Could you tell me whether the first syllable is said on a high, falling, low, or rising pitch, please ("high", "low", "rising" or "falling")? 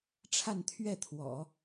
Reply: falling